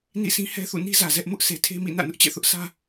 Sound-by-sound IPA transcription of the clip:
nḭ˦˨sʰĩ˦ hɛ˦θṵ˦˨ni˦zä˨ zɛ˦ʔ mʊ˦ʔse˨tʰe˦mḭ˦˨ nä̰˦˨nʊ˦ʔt͡ɕɛ̰˦˨ θʊ˦ʔsä˦

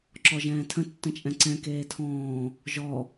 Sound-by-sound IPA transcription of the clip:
ǁɔʒɛ̃ːtʰə̃ tːə̃t͡ʃʼɛ̃ǀɛ̃ keːtʰɔ̃ː | ʒɔ

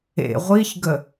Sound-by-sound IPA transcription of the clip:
ḛ ʁʷiçɡə

